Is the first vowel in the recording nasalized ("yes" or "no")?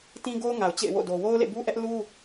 yes